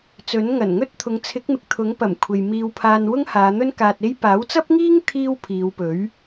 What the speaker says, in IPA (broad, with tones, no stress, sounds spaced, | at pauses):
t͡s ɵ˨˥ n ŋ ɐ˨˩ n ŋ ɵ˥ t̚ t̪ʰ ʊ˨˧ ŋ t͡sʰ ɪ˨˥ k̚ m ɪ˨ k̚ t̪ʰ ʊ˨˥ ŋ p ɐ˨˩ m kʷʰ e˨ j m iː˧ w pʰ aː˧ n w ʊ˥ ŋ h aː˨˧ n̪ ɵ˥ n k aː˧ t̚ e˥ j p aː˨˥ w t͡s ɐ˥ p̚ ŋ iː˥ ŋ t̪ʰ iː˥ w pʰ iː˨˧ w p ɵ˨˥ ɥ